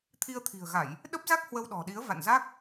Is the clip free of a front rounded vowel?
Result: yes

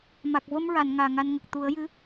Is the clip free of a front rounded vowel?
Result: yes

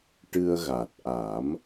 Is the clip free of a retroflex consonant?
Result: no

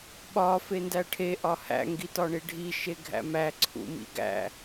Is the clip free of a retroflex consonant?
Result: no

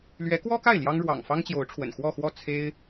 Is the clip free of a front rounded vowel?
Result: yes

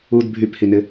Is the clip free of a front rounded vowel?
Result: no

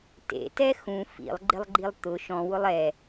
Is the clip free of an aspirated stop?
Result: yes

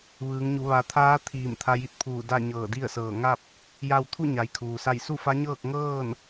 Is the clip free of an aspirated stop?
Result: no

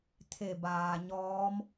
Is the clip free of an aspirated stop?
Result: no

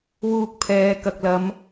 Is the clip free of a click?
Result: yes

